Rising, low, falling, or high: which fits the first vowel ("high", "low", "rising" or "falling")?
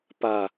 low